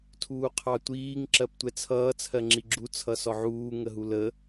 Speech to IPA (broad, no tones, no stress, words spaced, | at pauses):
tʰuːqʰɑtʷiːŋ ǁɜptʷɛt͡sʰʌː t͡sʰɜŋ͡ǁiɡ͡ǁu t͡sʰʌsɔʕuː ŋəɦulə